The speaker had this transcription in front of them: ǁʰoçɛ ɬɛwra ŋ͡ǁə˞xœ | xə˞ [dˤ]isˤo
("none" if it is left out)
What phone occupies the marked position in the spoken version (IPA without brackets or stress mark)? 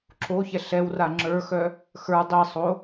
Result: dˤ